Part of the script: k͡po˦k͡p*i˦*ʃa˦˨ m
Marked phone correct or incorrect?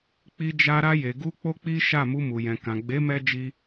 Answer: correct